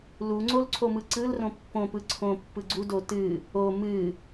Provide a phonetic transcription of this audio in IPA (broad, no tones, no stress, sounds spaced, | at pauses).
l u ŋ͡ǀ o l ǀʰ o m ɯ ǀ ɯ l r õ pː õ p ɯ ǀʰ õ pː ɯ ɡ͡ǀ u d o t ɨ | o m ɨ